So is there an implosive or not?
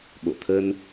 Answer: yes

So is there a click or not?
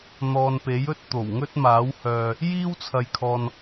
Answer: no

